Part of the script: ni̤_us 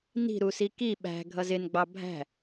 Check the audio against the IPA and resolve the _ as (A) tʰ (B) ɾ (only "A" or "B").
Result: B